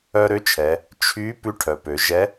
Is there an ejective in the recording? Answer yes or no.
no